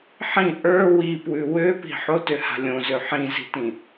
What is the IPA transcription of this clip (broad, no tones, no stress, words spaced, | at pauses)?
ħĩ ʔə˞ wipwʉ wøpi̤ ħotøha̤ lʲõzø ħĩzi̤tĩ